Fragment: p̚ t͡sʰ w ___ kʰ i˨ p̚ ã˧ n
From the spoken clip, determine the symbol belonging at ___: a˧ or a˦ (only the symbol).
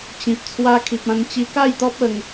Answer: a˧